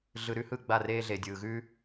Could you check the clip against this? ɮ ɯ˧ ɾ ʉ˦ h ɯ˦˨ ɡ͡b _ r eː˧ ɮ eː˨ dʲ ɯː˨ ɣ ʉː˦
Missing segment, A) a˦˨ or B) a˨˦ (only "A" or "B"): A